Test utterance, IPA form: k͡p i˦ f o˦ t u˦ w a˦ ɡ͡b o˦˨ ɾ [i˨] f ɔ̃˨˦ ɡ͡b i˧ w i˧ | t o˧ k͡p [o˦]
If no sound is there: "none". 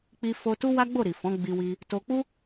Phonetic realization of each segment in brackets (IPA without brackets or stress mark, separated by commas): i˨, u˦